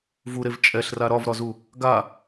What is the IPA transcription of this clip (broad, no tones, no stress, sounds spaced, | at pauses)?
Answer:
v u ɾ e v t͡ʃʼ ɛ ɬ r a ɾ ɒ v ɾ ɒ z u | ɡ a